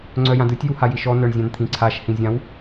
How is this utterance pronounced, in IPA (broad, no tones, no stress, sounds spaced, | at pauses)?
ŋ͡ǀ œ j ã d ɯ tʲ j u h a j i ʃ ɔ n œ ɳ zʲ ã n t̪ʰ ĩ ǀʰ a ʃ h ĩ zʲ ã w